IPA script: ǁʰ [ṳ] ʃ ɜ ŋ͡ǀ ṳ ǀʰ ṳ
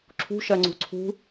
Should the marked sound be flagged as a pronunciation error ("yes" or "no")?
no